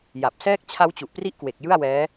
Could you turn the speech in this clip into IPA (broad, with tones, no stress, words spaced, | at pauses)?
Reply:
ja˨˩p̚ sɛː˦˥k̚ t͡ɕʰa˦˥wt͡ɕu˨˩ʔpri˦˥ʔkwe˨˩k̚ jɯ˥˩a̯wɛː˦˥